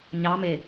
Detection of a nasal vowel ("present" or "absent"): absent